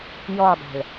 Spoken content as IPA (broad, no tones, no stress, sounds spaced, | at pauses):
j ɔ dˤ æ̤ ɭ